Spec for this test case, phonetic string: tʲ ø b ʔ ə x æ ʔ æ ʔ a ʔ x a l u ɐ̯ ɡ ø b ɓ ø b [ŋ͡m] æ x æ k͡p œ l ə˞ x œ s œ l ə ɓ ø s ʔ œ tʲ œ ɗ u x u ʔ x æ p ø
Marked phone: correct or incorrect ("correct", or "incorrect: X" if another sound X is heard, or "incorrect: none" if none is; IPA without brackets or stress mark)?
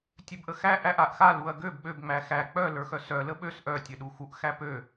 correct